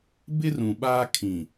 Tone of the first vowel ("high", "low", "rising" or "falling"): high